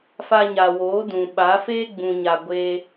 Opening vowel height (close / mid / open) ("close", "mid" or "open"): open